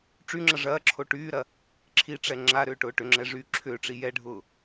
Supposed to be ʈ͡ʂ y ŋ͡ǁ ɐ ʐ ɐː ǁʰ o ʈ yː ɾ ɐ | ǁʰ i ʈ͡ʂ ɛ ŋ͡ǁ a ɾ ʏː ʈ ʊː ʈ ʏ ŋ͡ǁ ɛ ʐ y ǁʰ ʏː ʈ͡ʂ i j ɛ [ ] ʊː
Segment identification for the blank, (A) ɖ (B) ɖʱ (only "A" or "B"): B